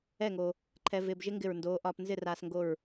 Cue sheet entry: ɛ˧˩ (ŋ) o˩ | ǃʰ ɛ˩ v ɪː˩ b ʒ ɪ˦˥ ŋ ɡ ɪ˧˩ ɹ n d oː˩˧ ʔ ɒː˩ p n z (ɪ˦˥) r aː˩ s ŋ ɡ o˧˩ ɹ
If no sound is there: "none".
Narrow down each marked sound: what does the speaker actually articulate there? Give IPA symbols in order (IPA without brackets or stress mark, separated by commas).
ŋ, ɪ˧˩